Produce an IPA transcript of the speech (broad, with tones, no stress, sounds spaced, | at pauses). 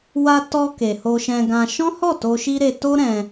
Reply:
w a˧ t ɔ˧ k e˨ h o˧ ʃ ɛ̃˧ ɡ ã˧ ʃ ɔ̃˦ h ɔ˦˨ t o˧ ʃ i˦ ɾ e˧ t o˦ ɾ ɛ̃˧